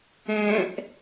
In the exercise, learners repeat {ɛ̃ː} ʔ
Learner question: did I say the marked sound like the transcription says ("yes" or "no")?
no